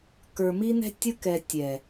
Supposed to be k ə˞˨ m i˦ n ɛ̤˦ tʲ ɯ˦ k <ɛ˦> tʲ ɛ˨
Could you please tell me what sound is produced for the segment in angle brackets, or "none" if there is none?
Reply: ɛ˨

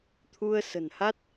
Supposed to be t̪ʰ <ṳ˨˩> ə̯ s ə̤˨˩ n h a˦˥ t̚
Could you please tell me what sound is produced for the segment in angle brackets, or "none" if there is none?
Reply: u˧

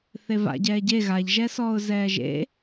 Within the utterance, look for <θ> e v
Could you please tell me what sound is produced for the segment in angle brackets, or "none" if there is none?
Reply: θ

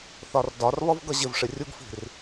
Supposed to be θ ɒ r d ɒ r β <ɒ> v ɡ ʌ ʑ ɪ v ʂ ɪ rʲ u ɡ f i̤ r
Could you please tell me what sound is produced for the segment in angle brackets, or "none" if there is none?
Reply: ʌ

